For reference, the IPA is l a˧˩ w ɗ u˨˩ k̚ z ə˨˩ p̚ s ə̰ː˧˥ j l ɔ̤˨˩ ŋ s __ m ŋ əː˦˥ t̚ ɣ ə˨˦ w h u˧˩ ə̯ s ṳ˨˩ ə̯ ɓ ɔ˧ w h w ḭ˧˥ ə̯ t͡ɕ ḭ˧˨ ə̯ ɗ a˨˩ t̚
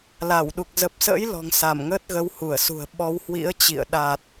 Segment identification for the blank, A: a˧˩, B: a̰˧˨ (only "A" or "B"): A